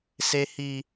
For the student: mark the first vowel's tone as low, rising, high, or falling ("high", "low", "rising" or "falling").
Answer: high